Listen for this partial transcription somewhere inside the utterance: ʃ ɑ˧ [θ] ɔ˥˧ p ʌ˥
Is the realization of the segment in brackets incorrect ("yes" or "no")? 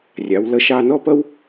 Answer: yes